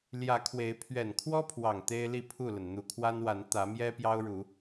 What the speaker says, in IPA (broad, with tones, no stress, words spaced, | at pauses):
ljä˨˦kʰwe˨˦ɪ̯ pʰɥɛ˨˩nkʰwɔ˦pʰwɑ˨˩ŋ t̪e˦ɪ̯li˥˨pʰu˥˨lə˩n n̪u˨˩kʰwa˦nwa˨˦n t̪ä˨˦mjɛ˦ pjɑ˦ʊ̯ɻu˨˦